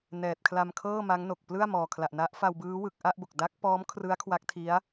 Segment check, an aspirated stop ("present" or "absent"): present